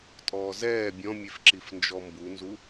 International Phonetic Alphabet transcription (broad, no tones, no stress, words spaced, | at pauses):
tʼɔːzɛː bʲɔ̃mʲefǁif nd͡ʒɔmbunzu